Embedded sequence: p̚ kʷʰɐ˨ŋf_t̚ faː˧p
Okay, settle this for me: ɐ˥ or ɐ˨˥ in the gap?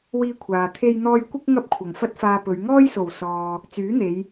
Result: ɐ˥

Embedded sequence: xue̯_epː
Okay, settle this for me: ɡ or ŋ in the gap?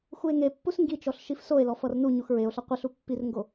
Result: ŋ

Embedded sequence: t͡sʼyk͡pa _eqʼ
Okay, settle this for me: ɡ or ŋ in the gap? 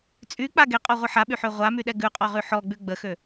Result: ɡ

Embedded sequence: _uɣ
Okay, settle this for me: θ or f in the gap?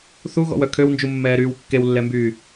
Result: θ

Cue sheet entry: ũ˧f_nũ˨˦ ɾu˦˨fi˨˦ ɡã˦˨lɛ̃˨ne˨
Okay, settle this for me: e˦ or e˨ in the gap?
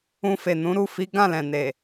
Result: e˨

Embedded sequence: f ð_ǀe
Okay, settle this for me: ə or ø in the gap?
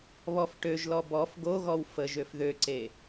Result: ø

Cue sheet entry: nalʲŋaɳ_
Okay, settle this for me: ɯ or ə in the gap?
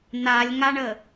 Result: ə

